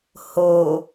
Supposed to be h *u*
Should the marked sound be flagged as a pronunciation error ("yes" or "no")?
yes